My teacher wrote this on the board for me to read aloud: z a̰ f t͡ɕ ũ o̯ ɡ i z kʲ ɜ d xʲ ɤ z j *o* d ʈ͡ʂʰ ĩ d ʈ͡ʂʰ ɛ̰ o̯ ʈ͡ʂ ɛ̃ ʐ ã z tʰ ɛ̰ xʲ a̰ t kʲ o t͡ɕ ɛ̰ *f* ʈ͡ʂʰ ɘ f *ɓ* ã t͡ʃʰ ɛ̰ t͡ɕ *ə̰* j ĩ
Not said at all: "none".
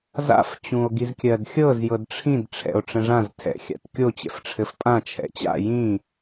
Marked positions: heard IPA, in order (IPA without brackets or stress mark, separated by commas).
ɤ, f, pʼ, a̰